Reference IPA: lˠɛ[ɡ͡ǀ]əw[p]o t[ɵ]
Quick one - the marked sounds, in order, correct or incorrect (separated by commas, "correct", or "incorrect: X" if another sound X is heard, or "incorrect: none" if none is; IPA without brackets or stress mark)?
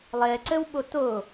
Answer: incorrect: ǀ, incorrect: ɓ, incorrect: o